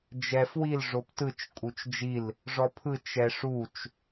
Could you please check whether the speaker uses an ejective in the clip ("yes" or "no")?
yes